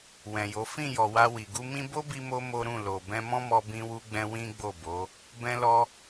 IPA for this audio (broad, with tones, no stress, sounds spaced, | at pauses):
w ɛ̃˨ j o˨˦ f ĩ˦˨ j ɔ˨ w a˧ w i˨ ɡ u˧ m ĩ˦ b o˦ b i˧ m o˧ m o˦ ɾ ũ˦˨ l o˨ b ɛ̃˧ m ɔ̃˦ m ɔ˧ b ĩ˦ w u˦ ɡ͡b ɛ̃˦ w ĩ˦ ɡ͡b o˦˨ b o˨˦ | b ɛ̃˧ l ɔ˧